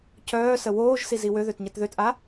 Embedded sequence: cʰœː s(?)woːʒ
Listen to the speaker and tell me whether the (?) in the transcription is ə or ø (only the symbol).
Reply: ə